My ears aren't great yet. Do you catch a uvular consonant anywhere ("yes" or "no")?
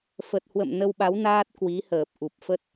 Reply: no